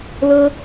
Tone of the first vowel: high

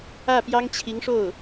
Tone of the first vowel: falling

